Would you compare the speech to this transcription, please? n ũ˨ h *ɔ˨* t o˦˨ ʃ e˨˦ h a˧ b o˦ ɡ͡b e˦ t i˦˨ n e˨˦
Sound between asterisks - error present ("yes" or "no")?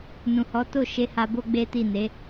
yes